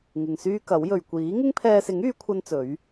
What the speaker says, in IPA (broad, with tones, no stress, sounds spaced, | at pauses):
ŋ ɪ˨ ŋ s yː˥ k ɐ˨˥ w j ɵ˨ ɥ kʷ iː˨˥ ŋ ɪ˥ ŋ pʰ ɛː˧ s ɪ˨˥ ŋ yː˨˧ kʷʰ ɐ˥ n t͡s ɵ˨˥ ɥ